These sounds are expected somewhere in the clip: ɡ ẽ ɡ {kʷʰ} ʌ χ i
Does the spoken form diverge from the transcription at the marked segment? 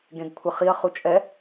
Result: no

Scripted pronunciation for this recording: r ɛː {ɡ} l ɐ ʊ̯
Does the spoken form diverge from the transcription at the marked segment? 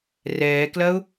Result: yes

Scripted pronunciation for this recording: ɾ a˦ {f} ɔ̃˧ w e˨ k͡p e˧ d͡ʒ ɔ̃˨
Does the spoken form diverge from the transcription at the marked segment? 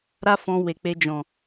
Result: no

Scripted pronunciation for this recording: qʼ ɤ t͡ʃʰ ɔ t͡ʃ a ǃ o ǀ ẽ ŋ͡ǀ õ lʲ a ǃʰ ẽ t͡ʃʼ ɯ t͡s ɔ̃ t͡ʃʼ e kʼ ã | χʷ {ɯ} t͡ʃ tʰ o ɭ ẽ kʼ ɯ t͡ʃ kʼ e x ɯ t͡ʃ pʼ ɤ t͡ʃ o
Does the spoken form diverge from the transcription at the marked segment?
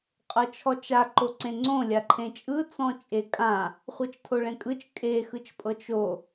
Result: yes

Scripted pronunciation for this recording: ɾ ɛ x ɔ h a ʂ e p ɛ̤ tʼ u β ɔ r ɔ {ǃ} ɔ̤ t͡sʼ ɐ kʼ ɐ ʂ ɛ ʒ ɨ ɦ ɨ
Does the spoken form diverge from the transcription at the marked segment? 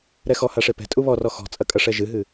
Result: yes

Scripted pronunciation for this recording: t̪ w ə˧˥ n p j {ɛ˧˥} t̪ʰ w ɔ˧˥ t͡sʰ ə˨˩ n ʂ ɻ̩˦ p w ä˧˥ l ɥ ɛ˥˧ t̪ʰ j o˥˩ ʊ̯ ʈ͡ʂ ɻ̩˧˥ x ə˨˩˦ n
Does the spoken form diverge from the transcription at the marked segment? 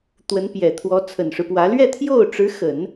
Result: yes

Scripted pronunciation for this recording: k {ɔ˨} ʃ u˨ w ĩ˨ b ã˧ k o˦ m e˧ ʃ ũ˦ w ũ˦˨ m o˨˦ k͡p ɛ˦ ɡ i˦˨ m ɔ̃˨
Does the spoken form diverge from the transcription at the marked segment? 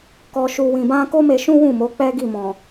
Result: no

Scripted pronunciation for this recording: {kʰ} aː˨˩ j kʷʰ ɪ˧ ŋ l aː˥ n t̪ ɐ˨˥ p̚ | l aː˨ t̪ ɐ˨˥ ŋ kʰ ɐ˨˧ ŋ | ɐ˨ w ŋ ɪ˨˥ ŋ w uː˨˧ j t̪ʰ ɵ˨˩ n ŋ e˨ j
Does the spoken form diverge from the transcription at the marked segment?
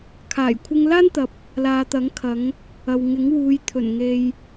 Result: no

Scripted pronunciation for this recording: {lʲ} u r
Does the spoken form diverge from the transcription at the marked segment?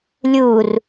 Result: no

